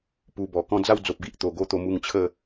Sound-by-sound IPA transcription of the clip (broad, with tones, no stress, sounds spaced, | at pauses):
p u˧ b ɔ˨˩ k ɔ̃˧ d͡z a˥˧ w d͡z o˨ p̚ ɡ i˦ ʔ t̪ o˨˩ ɡ o˦ t̪ o˧ m u˧ ŋ t͡ɕʰ ə˥˧